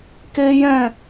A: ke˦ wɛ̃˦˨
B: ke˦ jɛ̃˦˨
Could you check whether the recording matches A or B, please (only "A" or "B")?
B